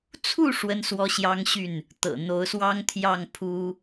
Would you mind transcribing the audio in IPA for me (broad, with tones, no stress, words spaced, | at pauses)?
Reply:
t͡sʰu˥˨ ʂwə˦nswɔ˦ɕjɑ˦ŋɕy˥˨n | t̪ɤ̰˨˩n̪o˨˦ʊ̯swɑ˦ŋ t̪ʰjɑ˥˨ŋpʰu˦